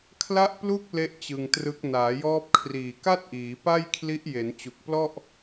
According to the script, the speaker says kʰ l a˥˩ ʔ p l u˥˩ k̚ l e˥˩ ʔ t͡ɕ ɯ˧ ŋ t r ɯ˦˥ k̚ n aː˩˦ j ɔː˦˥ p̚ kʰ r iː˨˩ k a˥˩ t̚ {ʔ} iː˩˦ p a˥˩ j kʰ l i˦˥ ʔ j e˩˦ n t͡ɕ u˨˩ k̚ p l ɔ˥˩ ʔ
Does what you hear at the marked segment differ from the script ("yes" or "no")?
no